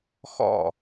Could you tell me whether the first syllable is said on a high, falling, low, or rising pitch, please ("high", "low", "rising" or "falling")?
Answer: falling